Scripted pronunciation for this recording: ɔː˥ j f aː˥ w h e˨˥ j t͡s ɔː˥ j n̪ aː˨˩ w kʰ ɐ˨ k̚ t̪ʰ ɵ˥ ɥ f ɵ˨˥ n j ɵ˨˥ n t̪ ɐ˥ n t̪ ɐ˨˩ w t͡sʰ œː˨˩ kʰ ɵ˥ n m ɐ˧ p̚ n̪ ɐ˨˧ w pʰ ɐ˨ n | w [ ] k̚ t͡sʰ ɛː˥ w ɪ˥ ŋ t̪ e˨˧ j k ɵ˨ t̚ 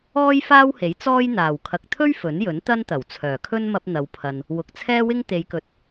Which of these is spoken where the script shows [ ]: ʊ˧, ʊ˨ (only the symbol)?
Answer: ʊ˨